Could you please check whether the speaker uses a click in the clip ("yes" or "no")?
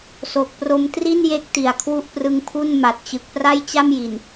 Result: no